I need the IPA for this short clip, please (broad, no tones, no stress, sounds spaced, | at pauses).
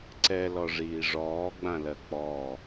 ǀ ɛ l ɔ ʐ iː ʐ ɔː ɡ͡b ã l ɜ k͡p ɔ